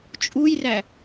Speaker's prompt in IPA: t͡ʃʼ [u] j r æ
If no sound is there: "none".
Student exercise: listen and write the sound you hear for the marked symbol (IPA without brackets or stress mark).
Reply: u